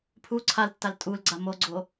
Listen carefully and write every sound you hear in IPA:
pʰu ǀʰaltːal tʼulɡ͡ǀa moɡ͡ǀo

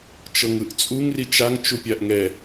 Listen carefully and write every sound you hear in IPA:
t͡ʃɤŋɯʔt͡sʼuŋ rit͡ʃaŋ t͡ʃupʲaʔŋɛ

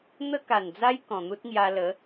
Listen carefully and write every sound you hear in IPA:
n̪ə˦ka˨˩nd͡za˦j kɔ̃˨˩n̪u˦t̚ŋja˧lə˨˦

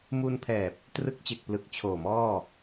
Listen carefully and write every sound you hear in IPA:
mu˧npʰɛː˨˩p̚ | trɯ˦˥k̚t͡ɕe˨˩k̚ plɯ˨˩k̚t͡ɕʰoː˨˩mɔː˥˩

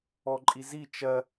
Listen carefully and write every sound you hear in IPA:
ɔǃʼizi t͡ʃɜ

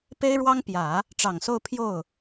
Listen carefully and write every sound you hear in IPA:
pe˥ɪ̯ɻwɑ˥ŋ pjä˨˩˦ | ʈ͡ʂɑ˨˩ŋso˥˧ʊ̯ pʰjo˥˩ʊ̯

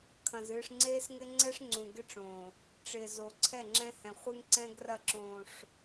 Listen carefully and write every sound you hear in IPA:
kʰɐ̃˨z ɨː˨ʂŋ͡ǀeː˦sŋɪ˦ ŋ͡ǀɛ˦ʂŋ͡ǀũ˨ɡɪ˦ʈ͡ʂõː˨ | ʈ͡ʂɪː˨zo˨ ǀʰɛ˦˨ŋ͡ǁɛ̃˦ hɛ̃˨ χʷɨ˦ŋǀɛ̃˦ɡrɐ˦˨ ǁõː˨ʂ

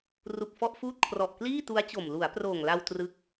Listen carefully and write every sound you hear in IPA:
ru˨˩k̚fɔ˥˩ʔfuː˥˩t̚ kʰrɔ˨˩ʔkliː˥˩tu˦˥a̯t͡ɕo˨˩m lu˩˦a̯proː˨˩ŋla˧w trɯ˦˥k̚

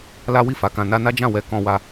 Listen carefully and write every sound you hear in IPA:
la˦ wi˦˨fa˨˦kã˧ na˧na˦d͡ʒã˦˨ wɛ˧ kɔ̃˧wa˧

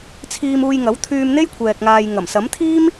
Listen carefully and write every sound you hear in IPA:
t͡sʰiː˧m uː˧jŋɐ˨˥w t̪ʰyː˧mn̪e˥j kʷʰɛː˨k̚ŋaː˨j ŋɐ˨˩msɐ˨˥mt̪ʰiː˥m

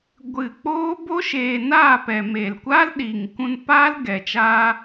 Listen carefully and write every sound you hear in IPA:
ɡʷɨ˦˨ k͡poː˦bo˦ ʃeː˧ naː˦˨pɛ˨ meː˨lkʷa˦lɗiː˨ŋkũ˧n paː˦lɡɛ˨t͡ʃaː˧

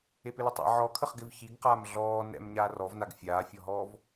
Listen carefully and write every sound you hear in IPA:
epɪlɘtˤa̰ ʕɔkʰəχ ɡɪvçiɡqaːm ɮɔː nɛ̰m ɲaːrɔvnaɡ fʲaːfʲɔɦɔːv

